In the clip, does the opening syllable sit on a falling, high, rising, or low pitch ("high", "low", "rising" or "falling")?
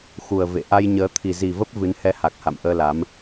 low